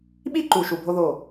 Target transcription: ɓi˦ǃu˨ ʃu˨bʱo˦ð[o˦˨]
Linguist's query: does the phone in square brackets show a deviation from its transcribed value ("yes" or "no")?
no